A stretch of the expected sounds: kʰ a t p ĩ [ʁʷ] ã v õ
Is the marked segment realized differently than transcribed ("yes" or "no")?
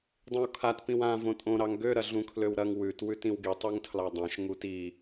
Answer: yes